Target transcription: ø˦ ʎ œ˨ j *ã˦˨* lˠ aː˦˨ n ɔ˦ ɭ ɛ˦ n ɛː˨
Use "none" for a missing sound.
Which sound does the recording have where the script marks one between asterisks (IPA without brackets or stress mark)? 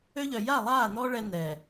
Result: a˦˨